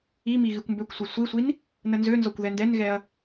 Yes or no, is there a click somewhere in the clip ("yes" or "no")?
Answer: no